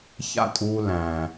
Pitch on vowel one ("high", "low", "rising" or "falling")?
falling